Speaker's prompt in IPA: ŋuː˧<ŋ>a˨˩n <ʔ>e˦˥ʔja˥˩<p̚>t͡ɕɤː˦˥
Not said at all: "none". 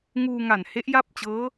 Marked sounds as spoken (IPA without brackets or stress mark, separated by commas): ŋ, h, p̚